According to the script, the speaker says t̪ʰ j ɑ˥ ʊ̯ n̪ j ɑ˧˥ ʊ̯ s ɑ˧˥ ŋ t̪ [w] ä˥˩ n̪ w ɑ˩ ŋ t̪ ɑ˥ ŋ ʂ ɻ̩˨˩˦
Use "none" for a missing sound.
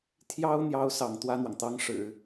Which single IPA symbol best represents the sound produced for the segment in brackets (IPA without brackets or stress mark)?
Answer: w